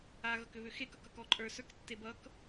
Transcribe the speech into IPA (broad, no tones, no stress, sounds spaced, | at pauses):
a ɣ ʌ k ʏ β ʏ x e k ʌ k ʌ k ɔ ǃʼ ə˞ s ə˞ k tː e b ʌ k